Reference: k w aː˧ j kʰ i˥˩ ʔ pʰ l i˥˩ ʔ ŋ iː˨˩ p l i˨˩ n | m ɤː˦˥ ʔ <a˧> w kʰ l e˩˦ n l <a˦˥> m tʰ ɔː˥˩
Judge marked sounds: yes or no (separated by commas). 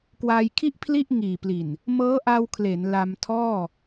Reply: yes, no